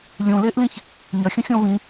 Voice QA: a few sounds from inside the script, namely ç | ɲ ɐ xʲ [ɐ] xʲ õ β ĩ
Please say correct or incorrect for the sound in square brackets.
incorrect